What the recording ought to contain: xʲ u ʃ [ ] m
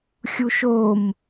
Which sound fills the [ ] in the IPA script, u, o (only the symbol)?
o